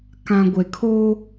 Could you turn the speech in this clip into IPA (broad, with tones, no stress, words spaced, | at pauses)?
kã˨ ɡʷe˨kʰoː˦